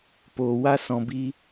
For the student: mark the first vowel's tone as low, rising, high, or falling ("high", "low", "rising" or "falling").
low